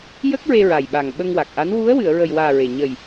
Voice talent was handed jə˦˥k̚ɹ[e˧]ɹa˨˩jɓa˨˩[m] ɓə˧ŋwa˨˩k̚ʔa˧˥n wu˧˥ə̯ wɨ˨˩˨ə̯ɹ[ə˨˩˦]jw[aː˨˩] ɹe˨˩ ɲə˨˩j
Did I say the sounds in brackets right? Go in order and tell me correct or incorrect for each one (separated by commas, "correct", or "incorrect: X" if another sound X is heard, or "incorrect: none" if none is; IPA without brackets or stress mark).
correct, incorrect: ŋ, incorrect: ə˨˩, correct